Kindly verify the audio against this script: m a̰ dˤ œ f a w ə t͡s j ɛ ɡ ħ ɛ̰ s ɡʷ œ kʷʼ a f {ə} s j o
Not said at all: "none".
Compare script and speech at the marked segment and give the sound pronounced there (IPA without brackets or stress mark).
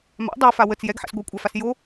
a